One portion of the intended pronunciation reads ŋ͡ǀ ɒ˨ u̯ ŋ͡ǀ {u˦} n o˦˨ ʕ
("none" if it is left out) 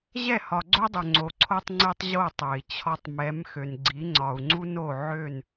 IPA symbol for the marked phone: u˦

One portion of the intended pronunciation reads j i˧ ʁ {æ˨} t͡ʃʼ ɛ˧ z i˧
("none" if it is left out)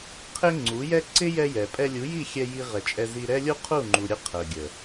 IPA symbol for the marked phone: ɛ˨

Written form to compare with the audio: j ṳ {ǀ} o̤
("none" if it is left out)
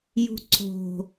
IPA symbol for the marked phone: ǀ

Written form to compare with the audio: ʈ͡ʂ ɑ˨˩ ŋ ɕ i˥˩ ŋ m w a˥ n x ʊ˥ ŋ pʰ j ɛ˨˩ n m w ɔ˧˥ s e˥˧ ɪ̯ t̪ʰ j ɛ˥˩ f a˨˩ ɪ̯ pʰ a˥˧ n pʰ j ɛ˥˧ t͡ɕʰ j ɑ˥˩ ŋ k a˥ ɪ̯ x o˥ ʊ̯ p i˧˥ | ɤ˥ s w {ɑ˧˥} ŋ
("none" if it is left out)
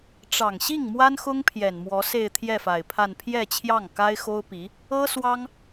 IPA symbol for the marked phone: ɑ˥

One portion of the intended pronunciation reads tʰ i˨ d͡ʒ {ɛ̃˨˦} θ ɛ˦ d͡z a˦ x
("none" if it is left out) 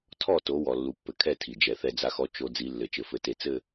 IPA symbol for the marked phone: ɛ˨˦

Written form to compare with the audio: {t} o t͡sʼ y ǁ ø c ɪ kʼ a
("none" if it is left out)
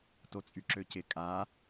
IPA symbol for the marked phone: t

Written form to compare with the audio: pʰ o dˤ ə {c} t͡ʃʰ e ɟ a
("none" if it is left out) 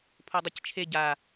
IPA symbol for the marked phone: c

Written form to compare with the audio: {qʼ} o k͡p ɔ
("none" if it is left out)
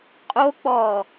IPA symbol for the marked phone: qʼ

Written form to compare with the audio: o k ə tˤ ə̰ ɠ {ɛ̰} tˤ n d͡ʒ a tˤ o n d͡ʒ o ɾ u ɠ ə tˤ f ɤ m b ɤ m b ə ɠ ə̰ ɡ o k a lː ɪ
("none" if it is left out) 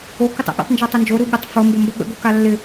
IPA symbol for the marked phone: ə̰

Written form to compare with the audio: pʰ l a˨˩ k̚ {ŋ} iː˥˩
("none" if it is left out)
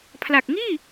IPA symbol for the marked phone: ŋ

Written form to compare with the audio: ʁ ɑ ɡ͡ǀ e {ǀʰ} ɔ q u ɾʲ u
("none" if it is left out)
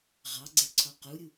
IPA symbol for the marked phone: ǀʰ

